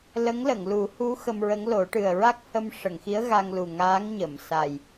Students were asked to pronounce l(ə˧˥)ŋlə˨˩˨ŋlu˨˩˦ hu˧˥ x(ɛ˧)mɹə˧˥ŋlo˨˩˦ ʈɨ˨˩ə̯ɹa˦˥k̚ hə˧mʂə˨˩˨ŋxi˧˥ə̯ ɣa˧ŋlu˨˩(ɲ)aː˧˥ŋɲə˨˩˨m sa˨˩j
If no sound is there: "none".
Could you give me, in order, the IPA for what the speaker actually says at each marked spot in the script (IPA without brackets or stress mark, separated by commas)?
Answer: ə˧˥, ə˧, ŋ